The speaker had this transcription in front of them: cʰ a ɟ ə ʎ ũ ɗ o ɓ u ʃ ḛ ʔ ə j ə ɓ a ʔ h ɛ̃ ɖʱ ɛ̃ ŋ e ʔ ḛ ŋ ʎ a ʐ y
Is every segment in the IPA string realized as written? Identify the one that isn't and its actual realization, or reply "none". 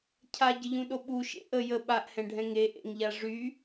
none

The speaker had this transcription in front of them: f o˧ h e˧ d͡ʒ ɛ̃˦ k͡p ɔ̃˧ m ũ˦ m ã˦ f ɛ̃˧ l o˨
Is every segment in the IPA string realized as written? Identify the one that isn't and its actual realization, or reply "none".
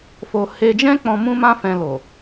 none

